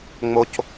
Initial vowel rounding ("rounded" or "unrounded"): rounded